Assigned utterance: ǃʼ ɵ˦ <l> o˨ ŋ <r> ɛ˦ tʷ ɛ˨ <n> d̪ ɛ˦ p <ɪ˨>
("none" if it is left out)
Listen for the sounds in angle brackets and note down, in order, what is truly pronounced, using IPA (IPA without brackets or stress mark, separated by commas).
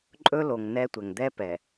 l, n, ŋ, ɛ˨